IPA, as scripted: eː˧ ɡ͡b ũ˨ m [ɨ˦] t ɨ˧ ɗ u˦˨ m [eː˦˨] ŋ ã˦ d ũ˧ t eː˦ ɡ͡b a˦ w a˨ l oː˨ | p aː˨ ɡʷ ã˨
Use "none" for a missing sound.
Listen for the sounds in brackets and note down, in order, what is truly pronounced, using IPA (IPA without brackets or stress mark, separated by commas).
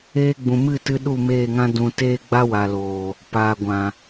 ɨ˦˨, eː˦˨